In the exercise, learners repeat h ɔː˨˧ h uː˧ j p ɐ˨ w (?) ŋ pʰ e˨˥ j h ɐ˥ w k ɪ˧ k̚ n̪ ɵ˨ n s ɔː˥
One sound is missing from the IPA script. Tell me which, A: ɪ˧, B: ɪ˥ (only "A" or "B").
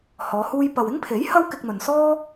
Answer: B